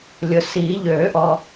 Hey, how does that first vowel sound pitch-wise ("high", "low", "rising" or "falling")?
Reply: low